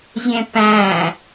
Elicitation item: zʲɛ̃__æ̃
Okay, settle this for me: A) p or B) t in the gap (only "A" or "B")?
A